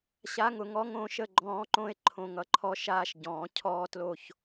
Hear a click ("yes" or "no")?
yes